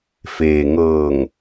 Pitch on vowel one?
low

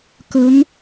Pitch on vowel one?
rising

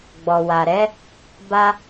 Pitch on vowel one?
low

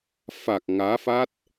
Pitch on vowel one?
low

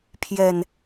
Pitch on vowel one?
low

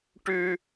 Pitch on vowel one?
high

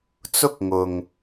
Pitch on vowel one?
high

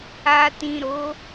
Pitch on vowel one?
low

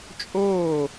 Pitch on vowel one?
falling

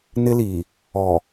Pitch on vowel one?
high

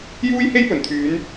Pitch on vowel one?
high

